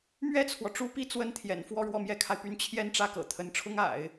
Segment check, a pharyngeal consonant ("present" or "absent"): absent